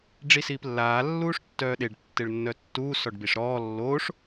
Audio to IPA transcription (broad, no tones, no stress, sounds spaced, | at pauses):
ɖ͡ʐ i s iː p lː aː lː uː ʂ tː œː ɗ e ɖ tː e ɭ nː œ tː uː s ɔ ɖ b i ʂ ɾ ɔː lː oː ʂ